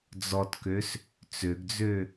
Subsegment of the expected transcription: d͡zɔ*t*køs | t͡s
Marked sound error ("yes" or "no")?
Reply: no